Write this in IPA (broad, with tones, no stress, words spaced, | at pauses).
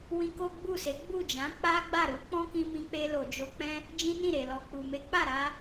wĩ˧ko˦ɡ͡bu˦˨se˨˦ ɡ͡bu˦˨d͡ʒã˨˦ k͡pa˦ɡ͡ba˦˨ɾu˨˦ k͡pɔ̃˦kĩ˧mĩ˧k͡pe˧ lo˨d͡ʒo˧k͡pɛ̃˦ | d͡ʒĩ˦nĩ˦˨ ɾe˨lɔ˨ k͡pu˨me˨˦k͡pa˦˨ɾa˧